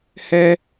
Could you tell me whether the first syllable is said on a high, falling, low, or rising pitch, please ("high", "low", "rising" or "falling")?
high